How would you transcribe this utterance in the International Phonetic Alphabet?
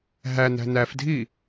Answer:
ɦ æ n æ̤ n æ f dʱ i

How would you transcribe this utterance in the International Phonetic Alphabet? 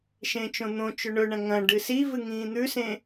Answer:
ʃ ẽː t͡ʃ õ n̪ õ t͡ʃ ɵ ɳ ɵ ɳ ɐ̃ ŋ ɐ̃ ɖ ɨ s i v ɨ ŋ ĩː n̪ ʉ s ẽ

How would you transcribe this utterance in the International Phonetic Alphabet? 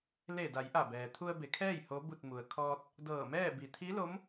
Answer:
l e˧˩ d a˩˧ j ʔ a˧˩ b ɛː˩ t̪ʰ u˧ ə̯ b e˩˧ kʰ ɛː˥˨ j h o˧˥ b u˥˨ t̚ m u˩ ə̯ kʰ ɔː˧ t̚ | d ɤː˧˩ m ɛː˥˨ b i˩˧ t̪ʰ i˧˥ l o˧˥ m

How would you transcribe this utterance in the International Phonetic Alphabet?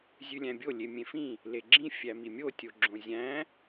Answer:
zʲ ʉ lʲ æ̃ bʲ o lʲ e mʲ ẽ f ĩ | l e ɡ͡ǁ ĩ fʲ æ m i mʲ o tʲ o ɡ͡ǁ õ zʲ æ̃

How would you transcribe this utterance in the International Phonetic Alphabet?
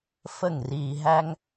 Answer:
f ə˦˨ ŋ r iː˧ ɦ æ˦ ŋ

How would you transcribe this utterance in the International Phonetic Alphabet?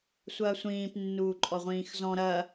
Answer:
sʷ ɐː sʷ ĩː p nː uː ǃʼ ɔ ʁʷ ĩː x z ɔ̃ ɾ ɐ

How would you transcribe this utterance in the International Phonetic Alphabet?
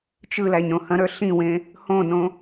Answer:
t͡ʃ ɯ l æ ɲ ɾ õ h ɐ̃ ɾ ə˞ ɬ ĩ w ẽ | h õ n õ

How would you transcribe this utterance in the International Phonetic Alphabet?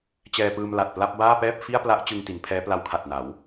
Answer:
t͡ɕ ɛː˧ p ɯː˧ m l a˨˩ t̚ p l a˥˩ p̚ b aː˥˩ p ɛː˥˩ p̚ f i˥˩ a̯ p l a˦˥ ʔ t͡ɕ ɯ˧ ŋ t i˩˦ n pʰ ɛː˦˥ p l a˦˥ w kʰ a˨˩ t̚ n a˩˦ w

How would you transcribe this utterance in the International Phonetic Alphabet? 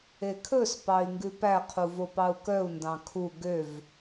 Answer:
e kʰ ɵ s p ɑ i̯ ŋ ɡ ʉ p æ qʰ u v o p ɑ u̯ k œ u̯ n d ɑ̃ kʰ u ɡ ø v

